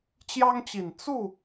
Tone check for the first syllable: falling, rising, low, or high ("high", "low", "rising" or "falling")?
high